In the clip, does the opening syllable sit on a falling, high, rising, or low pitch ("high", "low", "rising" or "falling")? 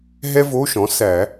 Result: high